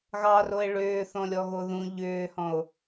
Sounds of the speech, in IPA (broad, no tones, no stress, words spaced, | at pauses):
ɣɑroe̯ ɭʏːθɔ̃lʲɔɣo ðũ ʎʏːhɔ̃o̯